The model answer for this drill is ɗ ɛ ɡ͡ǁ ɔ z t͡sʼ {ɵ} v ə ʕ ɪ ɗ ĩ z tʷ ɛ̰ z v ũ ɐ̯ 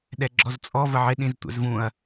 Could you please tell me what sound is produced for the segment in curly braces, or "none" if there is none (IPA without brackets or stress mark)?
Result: ɔ